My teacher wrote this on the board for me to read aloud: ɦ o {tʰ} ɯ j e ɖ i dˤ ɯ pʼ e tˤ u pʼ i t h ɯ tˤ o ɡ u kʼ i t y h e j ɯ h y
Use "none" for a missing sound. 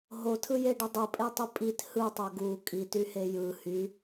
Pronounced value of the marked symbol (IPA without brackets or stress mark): tʰ